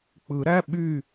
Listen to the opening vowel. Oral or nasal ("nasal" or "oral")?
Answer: oral